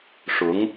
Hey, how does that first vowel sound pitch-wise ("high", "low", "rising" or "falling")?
rising